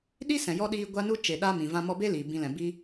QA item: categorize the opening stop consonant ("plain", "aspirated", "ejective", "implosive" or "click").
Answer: implosive